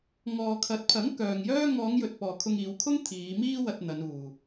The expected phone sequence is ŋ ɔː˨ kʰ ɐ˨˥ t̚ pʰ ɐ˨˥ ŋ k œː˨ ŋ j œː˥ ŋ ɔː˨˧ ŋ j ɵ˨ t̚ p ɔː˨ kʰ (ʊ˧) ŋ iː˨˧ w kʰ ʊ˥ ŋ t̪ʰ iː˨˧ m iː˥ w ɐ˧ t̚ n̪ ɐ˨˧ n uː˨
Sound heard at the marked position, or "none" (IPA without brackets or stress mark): ʊ˧